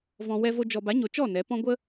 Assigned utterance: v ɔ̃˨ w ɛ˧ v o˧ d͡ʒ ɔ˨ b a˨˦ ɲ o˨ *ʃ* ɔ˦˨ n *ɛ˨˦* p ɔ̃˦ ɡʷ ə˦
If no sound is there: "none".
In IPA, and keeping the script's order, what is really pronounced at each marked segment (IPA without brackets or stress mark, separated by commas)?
t͡ʃ, ɛ˨˦